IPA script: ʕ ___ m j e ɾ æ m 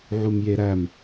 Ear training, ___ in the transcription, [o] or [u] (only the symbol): u